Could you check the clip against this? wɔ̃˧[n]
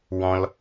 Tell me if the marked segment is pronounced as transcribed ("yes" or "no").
no